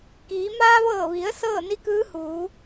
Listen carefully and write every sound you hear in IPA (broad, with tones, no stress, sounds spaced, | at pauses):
k iː˩˧ m aː˧ ʋ ɤː˧˩ ʋ i˩˧ ə̯ s ɤː˥˨ n i˧˥ k ɯː˧˥ h uː˩˧